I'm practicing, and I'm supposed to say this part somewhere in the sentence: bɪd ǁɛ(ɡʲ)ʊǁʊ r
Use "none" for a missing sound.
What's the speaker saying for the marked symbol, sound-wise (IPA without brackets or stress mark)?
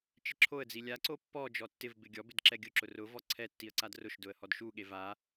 ɡʲ